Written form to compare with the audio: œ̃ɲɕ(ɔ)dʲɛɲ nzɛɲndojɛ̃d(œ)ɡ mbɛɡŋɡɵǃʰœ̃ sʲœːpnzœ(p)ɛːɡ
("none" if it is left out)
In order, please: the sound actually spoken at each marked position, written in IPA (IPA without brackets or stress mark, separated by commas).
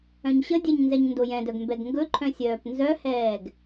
ə, œ, h